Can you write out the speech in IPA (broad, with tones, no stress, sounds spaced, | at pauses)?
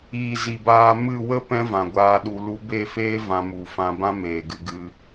iː˨ z i˨ b aː˧ m ɨ˦˨ w ə˦ p ɛ̃˦ v ã˨ ɡʷ aː˧ ɗ u˧ l u˧ b e˦˨ f eː˦ v ã˧ m u˨ f ã˧ b ã˦ m eː˨ ɡ ɨ˧ ɡ ɨ˧